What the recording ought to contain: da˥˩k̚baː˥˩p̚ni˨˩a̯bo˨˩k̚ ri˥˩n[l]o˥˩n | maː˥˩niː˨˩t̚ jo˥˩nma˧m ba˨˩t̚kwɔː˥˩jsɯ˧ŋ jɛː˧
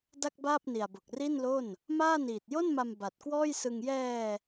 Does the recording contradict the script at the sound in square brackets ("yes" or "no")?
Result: no